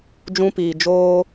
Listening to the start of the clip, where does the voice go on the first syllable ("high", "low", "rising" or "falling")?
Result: high